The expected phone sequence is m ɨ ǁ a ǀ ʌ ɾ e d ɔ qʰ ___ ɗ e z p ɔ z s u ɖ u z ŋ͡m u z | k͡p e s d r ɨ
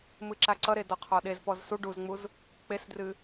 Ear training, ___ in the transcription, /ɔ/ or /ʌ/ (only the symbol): ɔ